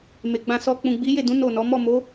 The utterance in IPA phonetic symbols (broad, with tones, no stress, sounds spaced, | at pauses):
m e˨ ɡ͡b ã˧ s ɔ˧ k͡p ũ˨ ɡ͡b i˨˦ j e˦˨ d ũ˨˦ n o˦˨ n ɔ˨˦ m ɔ˦˨ m o˨˦